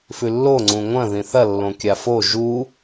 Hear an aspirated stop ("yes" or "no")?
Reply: no